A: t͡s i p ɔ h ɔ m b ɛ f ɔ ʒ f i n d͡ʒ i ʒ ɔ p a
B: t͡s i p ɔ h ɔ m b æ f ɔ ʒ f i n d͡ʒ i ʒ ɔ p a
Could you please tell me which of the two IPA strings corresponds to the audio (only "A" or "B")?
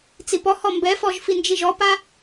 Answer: A